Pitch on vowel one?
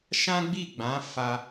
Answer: high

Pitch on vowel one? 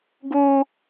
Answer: high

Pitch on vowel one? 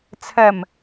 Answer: low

